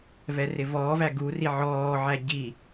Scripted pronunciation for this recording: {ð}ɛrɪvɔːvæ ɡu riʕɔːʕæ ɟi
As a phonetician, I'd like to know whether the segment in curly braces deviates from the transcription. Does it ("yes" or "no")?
yes